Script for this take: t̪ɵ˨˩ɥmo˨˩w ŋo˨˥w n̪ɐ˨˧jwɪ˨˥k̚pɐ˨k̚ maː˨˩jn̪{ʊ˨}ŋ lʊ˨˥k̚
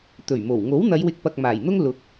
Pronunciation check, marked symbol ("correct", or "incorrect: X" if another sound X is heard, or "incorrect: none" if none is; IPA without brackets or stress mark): incorrect: ʊ˥